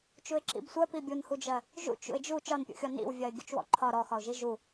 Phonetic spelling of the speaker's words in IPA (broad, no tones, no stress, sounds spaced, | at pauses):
t͡ʃ u ɪ̯ ǁ ḭ b sʷ ɜ p i bʲ u n h u d͡ʒ ɜ | ʒ ṵ t͡ʃ ṵ ɪ̯ d͡ʒ u t͡ʃ ɒ n pʲ ṵ xʲ ɔ n ḭ w vʲ ɜ ɪ̯ ɡʲ u t͡ʃ w ɔ̰ ǃʰ ɒ ɾ ɔ x ɒ ʊ̯ ʒ i ʒ u